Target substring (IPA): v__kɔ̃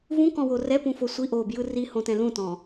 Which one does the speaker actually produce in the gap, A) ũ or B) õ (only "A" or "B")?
A